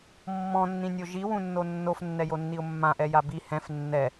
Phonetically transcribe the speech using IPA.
mː ɔ̃ nː ĩ nʲ o ʒ i w ũ nː o nː o f nː ɛ j o nː i ʊ̯ mː ã ʔ ɛ j a b i h ɛ̃ f nː ɛ

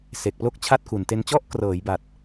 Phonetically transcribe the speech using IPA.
s e˨˩ k̚ p l o˥˩ k̚ t͡ɕʰ a˥˩ t̚ k u˨˩ n t e˧ n t͡ɕ ɔ˦˥ ʔ k r ɤː˩˦ j b a˨˩ t̚

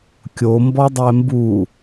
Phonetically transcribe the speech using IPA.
kʲ o m b ɔ dˤ ɛ m b u

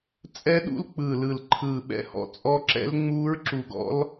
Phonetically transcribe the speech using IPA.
t͡sʼ ɛ˦˥ ɗ ṵ˦˥ l k͡p ɯː˧˩ l ɯ˧˩ l ǃʰ ɯː˧˩ ɓ ɛ̰˦˥ h ɔ̰˦˥ t͡sʼ ɔ˦˥ ǁ ɛ̰˦˥ l ŋ͡m uː˦˥ ɹ ǁ u˧˩ ɡ ɔ̰˦˥ l

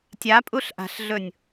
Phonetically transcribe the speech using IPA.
tʲ a pʼ u ɬ ʔ a̤ ɬ ɮ ɵ nʲ

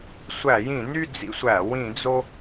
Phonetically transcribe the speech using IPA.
sʷ æ˧˩˧ j ĩ˧˩˧ n y˥˧ d͡z ḭ˥˧ sʷ æ˧˩˧ w ĩ˧˩˧ d͡z o˧

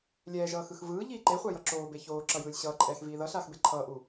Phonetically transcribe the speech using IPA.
lʲ ɛː ʒ ʌː x ɯ x v ɯː ʎ iː ǃ e χʷ a j ʌ ǁ oː b e ç oː ǁ ʌ j ɯː lʲ ɕ ʌː ǃʼ ɛː x v iː ð ʌ ɬ aː x b e ǃʰ ʌː ʔ u

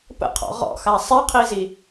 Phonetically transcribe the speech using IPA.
p ə̰ qʰ ɔ̰ ʁ ɔ̰ x a sˤ ɛ qʰ i z i

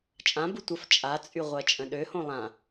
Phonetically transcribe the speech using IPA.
t͡ʃʼ ã b u tʷ ə f t͡ʃʼ a t͡sʼ y ʁʷ ɜ t͡ʃʼ ə̃ ɗ ø h õ lˠ ã

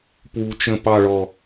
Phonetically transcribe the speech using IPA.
p w u t͡ʃ ə̃ p ɑ ɭ ɔ

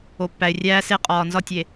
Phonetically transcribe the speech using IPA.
o˨ pː æ˨ ɪ̯ rʲ æː˦ s e˦ qʼ ɒː˨ n z ɒ˦ tʲ e˨

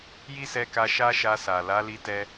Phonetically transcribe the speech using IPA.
j i˦ s ɛ˧ k a˧ ʃ a˦ ʃ a˧ s a˨ l a˨˦ l i˧ t ɛ˧

